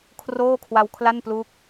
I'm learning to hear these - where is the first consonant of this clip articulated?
velum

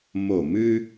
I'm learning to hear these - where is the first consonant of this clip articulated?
lips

